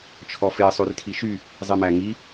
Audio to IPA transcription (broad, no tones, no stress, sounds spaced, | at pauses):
t͡ʃʰ ɔ f e sˤ ʉ r tʰ i ʃ y | zˤ i m æ ŋ i